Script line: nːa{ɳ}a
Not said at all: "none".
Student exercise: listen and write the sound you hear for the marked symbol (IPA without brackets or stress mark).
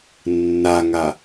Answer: ŋ